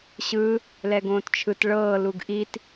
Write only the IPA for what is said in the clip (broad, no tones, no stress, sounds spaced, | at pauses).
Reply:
ɕ ɯ | l ɛ ɡ õː t t͡ʃʰ ɯ t ɭ ɤː l u ɡ ʔ i t